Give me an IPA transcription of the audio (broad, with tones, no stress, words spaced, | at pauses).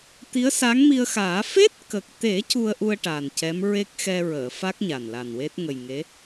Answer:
t̪i˧˥ə̯ sa˧˥ŋmi˧ə̯xaː˨˩˦ fe˦˥t̚kə˨˩k̚t̪e˨˩˦ cu˧ə̯ʔu˧ə̯ ʈa˨˩ncɛ˧˥m ɹe˦˥k̚xɛ˧ɹəː˨˩˨fa˦˥k̚ ɲa˨˩nla˨˩nwe˦˥t̚ ŋə˨˩jŋe˧˥